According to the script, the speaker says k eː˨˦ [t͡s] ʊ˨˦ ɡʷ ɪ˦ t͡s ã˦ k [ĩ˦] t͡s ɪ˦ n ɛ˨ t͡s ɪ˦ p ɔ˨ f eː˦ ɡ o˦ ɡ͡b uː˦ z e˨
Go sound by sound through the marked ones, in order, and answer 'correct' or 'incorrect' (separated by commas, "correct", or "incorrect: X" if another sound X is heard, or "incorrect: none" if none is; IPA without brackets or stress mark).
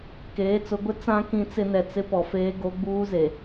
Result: correct, correct